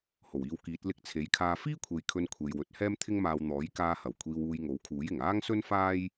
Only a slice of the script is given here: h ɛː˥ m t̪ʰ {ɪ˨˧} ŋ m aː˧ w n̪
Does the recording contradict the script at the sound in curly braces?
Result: yes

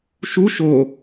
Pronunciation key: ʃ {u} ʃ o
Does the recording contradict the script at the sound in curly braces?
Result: no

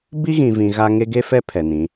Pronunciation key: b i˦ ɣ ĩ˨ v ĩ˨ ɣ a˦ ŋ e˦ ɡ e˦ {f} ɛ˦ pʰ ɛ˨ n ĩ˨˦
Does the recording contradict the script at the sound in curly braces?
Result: no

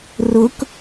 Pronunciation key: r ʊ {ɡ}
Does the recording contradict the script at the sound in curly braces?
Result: yes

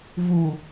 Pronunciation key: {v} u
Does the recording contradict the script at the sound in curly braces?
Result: no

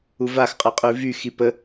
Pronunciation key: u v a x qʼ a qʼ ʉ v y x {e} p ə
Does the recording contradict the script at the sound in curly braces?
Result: yes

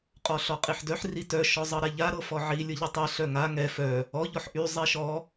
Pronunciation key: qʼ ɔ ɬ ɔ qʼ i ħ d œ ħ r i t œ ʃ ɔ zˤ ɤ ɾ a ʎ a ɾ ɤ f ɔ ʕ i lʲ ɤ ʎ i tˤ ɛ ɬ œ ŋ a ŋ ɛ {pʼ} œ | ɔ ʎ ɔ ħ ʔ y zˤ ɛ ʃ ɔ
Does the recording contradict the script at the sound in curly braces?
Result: yes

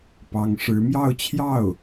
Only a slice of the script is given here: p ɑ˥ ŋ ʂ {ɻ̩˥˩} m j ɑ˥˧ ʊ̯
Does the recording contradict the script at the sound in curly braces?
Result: yes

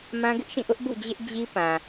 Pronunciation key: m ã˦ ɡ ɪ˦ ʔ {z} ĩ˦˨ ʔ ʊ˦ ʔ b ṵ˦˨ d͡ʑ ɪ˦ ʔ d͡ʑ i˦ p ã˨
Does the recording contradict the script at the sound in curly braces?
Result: yes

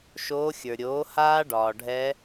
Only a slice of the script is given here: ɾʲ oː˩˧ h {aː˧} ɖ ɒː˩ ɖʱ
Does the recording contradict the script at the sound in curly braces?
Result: no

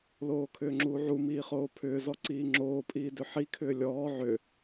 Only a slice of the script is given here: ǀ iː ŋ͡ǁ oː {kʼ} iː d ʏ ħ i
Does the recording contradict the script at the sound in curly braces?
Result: yes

